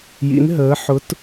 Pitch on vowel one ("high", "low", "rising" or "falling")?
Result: rising